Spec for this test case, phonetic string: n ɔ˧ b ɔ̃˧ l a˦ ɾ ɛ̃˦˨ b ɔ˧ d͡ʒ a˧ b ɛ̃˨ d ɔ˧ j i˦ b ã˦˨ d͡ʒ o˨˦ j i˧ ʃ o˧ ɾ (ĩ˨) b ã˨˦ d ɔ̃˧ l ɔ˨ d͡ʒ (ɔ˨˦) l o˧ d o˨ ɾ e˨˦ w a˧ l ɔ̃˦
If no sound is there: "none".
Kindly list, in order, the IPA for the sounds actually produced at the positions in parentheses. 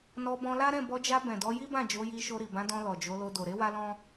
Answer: i˨, o˨˦

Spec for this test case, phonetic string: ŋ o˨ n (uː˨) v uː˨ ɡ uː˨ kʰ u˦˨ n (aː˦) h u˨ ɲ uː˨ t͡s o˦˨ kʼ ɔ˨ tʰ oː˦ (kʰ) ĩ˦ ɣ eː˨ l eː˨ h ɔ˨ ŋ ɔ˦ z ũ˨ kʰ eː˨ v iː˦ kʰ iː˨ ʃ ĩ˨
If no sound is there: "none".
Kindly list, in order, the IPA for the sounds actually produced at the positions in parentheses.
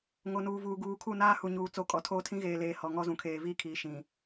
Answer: uː˨, aː˦, tʰ

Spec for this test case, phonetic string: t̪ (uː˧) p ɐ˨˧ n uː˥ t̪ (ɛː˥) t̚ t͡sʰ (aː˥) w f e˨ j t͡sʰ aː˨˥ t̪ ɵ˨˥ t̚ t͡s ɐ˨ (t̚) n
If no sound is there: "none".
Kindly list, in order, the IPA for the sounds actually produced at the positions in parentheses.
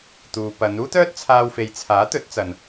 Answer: uː˨, œː˥, aː˧, none

